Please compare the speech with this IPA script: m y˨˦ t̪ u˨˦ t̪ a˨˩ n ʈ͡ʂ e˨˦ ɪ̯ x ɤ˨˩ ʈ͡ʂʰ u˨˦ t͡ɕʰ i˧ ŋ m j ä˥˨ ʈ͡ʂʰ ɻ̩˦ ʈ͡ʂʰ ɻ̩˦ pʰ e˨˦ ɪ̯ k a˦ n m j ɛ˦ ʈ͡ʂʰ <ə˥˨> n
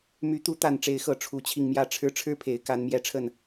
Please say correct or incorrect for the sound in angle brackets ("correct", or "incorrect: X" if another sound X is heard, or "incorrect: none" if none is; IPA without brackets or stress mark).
correct